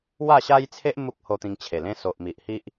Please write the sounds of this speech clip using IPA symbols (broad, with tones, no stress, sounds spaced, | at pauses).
w a˥˧ ɕ a˦ j t͡sʰ e˦ ʔ m u˦ k̚ h o˧ t̪ ĩ˧ ŋ t͡ɕʰ e˨˩ l ẽ˧ s o˨ ʔ m i˨ ʔ h i˦ ʔ